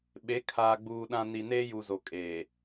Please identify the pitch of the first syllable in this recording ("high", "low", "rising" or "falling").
rising